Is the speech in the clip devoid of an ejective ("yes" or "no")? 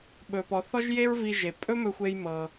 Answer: no